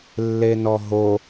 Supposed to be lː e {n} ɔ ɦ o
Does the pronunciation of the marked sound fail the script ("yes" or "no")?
no